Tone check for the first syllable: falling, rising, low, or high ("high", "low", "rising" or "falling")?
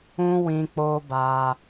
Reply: high